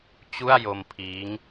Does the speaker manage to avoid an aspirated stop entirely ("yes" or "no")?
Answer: no